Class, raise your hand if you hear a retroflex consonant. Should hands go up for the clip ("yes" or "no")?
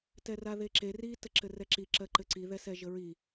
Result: no